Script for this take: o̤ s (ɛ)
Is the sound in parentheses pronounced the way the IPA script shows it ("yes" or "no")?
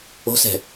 no